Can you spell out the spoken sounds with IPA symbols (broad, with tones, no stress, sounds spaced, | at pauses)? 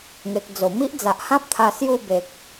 ŋ e˨ k̚ d͡z o˨˩ m i˦ ʔ d͡z a˨ ʔ h ã˦ p̚ t̪ʰ a˧ s j u˥˧ b e˨ k̚